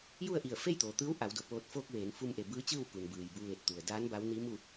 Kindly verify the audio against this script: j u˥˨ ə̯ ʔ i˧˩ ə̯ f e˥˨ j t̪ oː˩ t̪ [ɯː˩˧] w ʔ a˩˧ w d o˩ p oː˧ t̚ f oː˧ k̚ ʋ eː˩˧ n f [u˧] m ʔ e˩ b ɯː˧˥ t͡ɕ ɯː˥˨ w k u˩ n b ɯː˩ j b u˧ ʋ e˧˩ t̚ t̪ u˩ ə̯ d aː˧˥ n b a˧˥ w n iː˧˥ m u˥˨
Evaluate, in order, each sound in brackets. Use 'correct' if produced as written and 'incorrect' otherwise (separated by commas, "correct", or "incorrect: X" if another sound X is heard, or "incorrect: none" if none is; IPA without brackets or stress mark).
incorrect: ɯː˧˥, correct